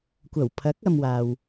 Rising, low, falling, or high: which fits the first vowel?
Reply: low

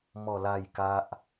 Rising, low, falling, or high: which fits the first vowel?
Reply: falling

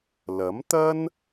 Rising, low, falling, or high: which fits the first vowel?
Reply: rising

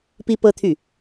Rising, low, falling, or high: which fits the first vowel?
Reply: high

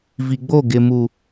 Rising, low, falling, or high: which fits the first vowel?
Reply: low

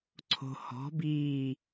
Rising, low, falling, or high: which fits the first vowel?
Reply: low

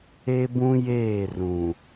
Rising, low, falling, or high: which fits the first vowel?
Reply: high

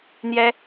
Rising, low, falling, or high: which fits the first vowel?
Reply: high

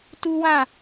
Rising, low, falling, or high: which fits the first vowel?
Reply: high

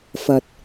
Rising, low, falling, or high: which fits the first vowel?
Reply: low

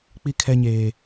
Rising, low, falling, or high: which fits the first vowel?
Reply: high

